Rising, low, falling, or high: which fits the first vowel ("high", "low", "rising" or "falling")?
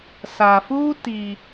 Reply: low